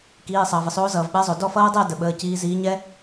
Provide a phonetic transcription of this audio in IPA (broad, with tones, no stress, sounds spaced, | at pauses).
k iː˩˧˩ sˤ ʌː˩ v ə˩ sˤ oː˨˦ z ʌː˩ v ɓ ɛ˨˦ zˤ o˩ d ɔ˥˩ f ʌː˦˥ dˤ əː˥˧ d ə˩ ɓ əː˩˧˩ c iː˨˦ z iː˨˦ ɲ ɛ˦˥